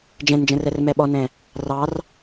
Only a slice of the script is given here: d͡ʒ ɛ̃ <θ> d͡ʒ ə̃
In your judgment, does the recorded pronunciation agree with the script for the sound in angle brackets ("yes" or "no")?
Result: no